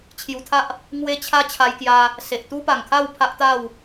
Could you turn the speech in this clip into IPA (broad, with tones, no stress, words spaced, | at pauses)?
t͡ɕʰju˧t̪ʰa˦ʔ | ŋwe˦t͡ɕʰa˦ t͡ɕʰa˧jkja˧ | se˨ʔ t̪u˦pa˨˩ŋkʰa˥˧w pʰa˦ʔt̪a˥˧w